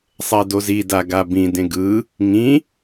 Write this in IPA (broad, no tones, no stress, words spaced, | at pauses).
sˤɛdozida ɡabĩdẽ ɡɯ | ŋĩ